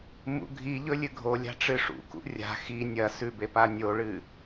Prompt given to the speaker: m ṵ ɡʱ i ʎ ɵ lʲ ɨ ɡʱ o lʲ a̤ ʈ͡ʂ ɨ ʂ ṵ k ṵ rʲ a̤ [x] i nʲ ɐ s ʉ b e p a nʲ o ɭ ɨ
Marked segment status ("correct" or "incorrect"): correct